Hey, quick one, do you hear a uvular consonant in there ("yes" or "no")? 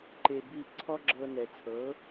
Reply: no